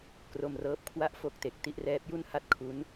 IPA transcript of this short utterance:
k r o˧ m r ɤː˦˥ p̚ kʰ w a˥˩ ʔ f o˦˥ k̚ t e˨˩ k̚ t i˥˩ ʔ r ɛː˦˥ p̚ j u˥˩ n h a˥˩ t̚ kʰ u˦˥ n

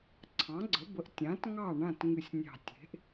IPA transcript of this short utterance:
ǀʰ ɑ̃˩˥ ɡ͡ǀ ə˩˥ b ə˩˥ ʔ tʲ ã˩˥ t ŋ ɑ˥˨ ɳ ã˥˨ t ŋ ɨ˧˩ sʲ nʲ ɑ̤˧˩ tʲ e̤˩˥ ʔ

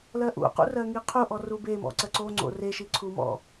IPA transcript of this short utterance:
l ɜ ʔ ṵ q ṵ r ɜ ŋ i qʰ u ʔ ɔ r u b e m ɔ̰ ǀ ɜ ǀ o ŋ͡ǀ o̰ r e ʃ i ǀʰ u m ɔ̰

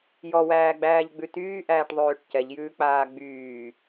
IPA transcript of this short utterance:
j ɔ w æː ɡ͡b æː ʎ ɡ͡b ʉ t yː ʔ æː ʈ ðˤ øː ʈ c ɛ ʎ j ʉː k͡p aː ɡ͡b yː

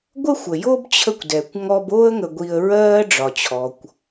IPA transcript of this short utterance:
ɡʷ ə˥ xʷ ə˩ j o˥ b t͡ɕʰ ə˦ kʷ d ɛ˩ kʷ ŋ ɔ˦ b o˥ ə̯ ŋ ə˨ ɡʷ i˨ ə̯ ɹ ɜː˦ ɖ͡ʐ ɒ˩ t͡ɕʰ ɔ˩ kʷ

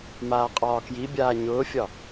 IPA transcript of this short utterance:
m aː qʼ ɒː k j i bʲ aː ɲ ʊː fʲ ɒ

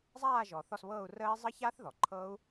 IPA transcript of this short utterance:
zˤ aː˦˨ ʒ ɔ˩ θ ɔ˦˨ s β ɤː˦˨ u̯ r əː˦˥ i̯ zˤ ə˦˥ ç aː˦˥ θ ð ɔ˩ ǃʰ ɤː˦˥ u̯

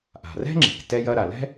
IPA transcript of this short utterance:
ʔ a̤˩ r ɛ̤˥ ŋ͡ǁ e̤˩ k t ɛ˥ j ɐ˥ ɾ a˩ l ɛ̤˥

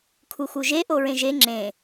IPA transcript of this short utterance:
kʰ u x u ʒ e ʔ o ɹ ẽ ʒ e ŋ͡ǁ ẽ

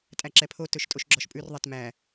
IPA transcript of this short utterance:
tʼ æ ǁ ɛ pʰ o t ɵ ʃ tʼ o ʃ ɡ͡ǁ ɔ ʃ pʼ ʉ r ðˤ ɛ t m æ

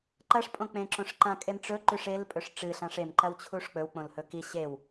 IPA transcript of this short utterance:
ǃ ɐ ʂ pʼ õ k͡p ẽ ǁ õ ʂ ǃ ã kʼ e m ʈ͡ʂ ɵ ǃ ʉ ʂ e l pʼ ɵ ʂ ʈ͡ʂ ɨ ɬ ã ʂ e m ǃ ɐ w t͡ɕʰ u ʂ k͡p ɵ w k͡p õ l h ɵ k i ɕ e w

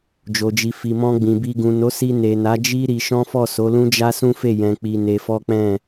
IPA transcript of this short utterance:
d͡ʒ o˨ d͡ʒ i˨ f i˨ m ɔ̃˧ ɡ͡b ĩ˨ b i˧ ɡ ũ˨ n o˨˦ s i˧ n e˨ n a˨˦ d͡ʒ i˦ ɾ i˧ ʃ ɔ̃˦ f ɔ˦˨ s o˨˦ l ũ˦ d͡ʒ a˦ s ũ˦ f e˦˨ j ɛ̃˨ k͡p i˧ n e˧ f ɔ˦ k͡p ɛ̃˦˨

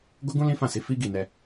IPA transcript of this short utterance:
ɡ o˦ ɡ ũ˦ l ĩ˦ f ã˦˨ s i˨˦ f i˦ ɡ i˦˨ n ɛ˧

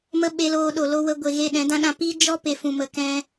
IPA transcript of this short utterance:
m ə˦ ɓ e˧ l oː˧ ɗ o˨ l o˧ w ə˧ ɡʷ e˨ ɣ e˦˨ ɗ ɛ̃˨˦ d ã˦ ɗ ã˧ p i˦ d͡ʒ ɔ˦ p e˨ f ũ˨ m ə˨ k ɛ̃˧

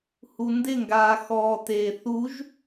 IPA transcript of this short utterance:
h u n d ɪ ŋ ɡ aː x ɔː t eː θ u ʒ

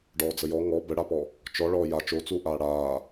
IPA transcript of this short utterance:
ɖ ɔː d͡z ə j ɔ ŋ ɔ b ə ɽ a p ɔ | t͡ʃ ɔ ɭ ɔː j a t͡ʃ o t͡s uː ʔ aː ɽ aː

